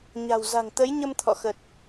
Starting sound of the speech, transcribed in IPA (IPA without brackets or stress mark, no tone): ɲ